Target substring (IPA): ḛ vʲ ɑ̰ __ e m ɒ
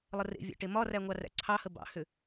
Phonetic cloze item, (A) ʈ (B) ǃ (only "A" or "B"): A